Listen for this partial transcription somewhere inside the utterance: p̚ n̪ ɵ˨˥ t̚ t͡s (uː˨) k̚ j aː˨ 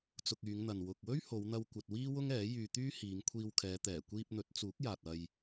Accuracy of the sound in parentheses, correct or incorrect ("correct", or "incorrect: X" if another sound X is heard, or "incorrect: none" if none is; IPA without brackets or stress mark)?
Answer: incorrect: uː˨˥